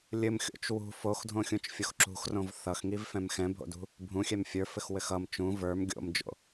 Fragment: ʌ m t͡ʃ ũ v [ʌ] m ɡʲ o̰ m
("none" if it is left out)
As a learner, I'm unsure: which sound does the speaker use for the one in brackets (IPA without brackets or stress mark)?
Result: ə˞